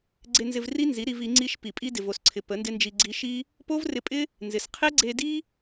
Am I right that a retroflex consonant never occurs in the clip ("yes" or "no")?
yes